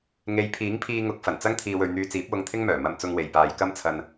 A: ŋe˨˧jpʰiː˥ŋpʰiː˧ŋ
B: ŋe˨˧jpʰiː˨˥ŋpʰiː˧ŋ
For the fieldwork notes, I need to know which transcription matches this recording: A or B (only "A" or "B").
B